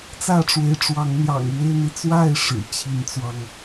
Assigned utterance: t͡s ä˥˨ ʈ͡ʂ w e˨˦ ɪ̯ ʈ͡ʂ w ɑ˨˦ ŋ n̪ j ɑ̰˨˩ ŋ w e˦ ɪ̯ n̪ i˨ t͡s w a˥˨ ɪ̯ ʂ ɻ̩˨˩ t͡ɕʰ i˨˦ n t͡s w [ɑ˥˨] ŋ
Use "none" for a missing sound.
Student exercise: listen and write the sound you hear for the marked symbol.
ɑ˧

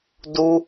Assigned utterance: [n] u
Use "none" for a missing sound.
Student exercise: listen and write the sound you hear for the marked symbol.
d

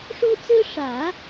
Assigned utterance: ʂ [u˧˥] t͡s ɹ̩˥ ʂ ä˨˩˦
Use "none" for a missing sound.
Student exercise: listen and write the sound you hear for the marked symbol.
u˥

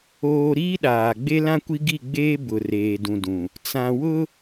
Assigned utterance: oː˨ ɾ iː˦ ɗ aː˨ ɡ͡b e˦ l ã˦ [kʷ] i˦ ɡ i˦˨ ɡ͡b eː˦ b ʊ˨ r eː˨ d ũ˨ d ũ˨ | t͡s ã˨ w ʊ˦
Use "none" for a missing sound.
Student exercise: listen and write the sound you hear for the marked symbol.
kʷ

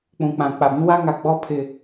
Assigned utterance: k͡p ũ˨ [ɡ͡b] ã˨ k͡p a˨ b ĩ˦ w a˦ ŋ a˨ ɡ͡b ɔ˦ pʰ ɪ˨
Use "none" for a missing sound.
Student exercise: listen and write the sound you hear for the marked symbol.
k͡p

